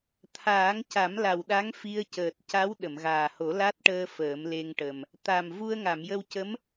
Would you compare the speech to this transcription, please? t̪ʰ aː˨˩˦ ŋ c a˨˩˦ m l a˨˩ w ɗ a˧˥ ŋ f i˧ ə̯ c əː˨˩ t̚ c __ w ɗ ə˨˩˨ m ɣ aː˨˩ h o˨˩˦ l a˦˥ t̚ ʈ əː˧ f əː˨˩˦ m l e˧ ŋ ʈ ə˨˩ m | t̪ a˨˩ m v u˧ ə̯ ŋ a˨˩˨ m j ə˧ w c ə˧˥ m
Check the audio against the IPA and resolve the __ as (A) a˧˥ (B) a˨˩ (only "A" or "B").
A